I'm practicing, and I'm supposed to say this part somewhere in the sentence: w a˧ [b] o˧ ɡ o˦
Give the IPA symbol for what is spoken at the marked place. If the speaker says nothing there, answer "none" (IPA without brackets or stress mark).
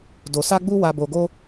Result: b